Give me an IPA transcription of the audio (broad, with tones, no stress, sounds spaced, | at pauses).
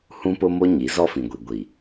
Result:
h ũ˦ p ʊ˦ m o˦ ɲ i˨˦ z ɔ˦ f ĩ˨ ɡʷ i˨ ɡʷ i˨